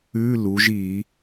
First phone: ʉ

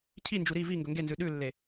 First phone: cʰ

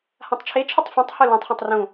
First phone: h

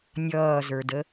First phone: nʲ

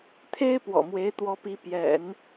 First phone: t̪ʰ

